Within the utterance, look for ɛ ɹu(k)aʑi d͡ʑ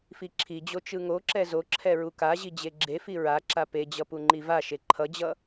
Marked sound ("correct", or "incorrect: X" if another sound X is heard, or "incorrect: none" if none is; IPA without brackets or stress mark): correct